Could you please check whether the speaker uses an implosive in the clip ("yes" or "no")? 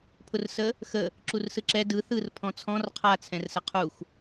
no